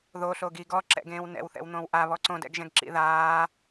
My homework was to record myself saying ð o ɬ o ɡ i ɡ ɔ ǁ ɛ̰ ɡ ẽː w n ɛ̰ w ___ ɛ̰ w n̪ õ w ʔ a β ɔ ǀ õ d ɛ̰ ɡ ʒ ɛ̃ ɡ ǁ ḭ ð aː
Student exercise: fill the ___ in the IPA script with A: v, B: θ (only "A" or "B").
B